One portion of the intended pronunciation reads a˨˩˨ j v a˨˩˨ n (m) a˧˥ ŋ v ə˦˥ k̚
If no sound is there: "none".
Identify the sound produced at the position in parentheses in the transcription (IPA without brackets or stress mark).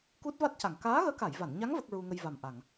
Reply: ɲ